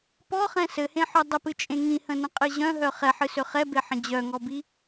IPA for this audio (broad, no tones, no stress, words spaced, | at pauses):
pɔχɛ̃ sɘhẽħœ dˤəpɨt͡ʃʼẽ ŋĩhə̃nə̃qʼɨ ʑœ̃ɦœ χɛħɨsø χɛbeħə̃ d͡ʑœŋɔbi